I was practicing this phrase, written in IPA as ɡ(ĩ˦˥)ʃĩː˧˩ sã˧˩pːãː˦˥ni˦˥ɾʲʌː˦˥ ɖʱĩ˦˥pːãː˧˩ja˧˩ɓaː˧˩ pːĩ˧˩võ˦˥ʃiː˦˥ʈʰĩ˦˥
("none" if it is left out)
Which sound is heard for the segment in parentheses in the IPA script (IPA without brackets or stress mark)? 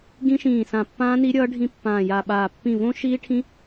ĩ˦˥